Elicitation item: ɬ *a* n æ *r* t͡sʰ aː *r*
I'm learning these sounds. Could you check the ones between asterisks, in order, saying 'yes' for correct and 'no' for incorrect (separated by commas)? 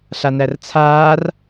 yes, yes, yes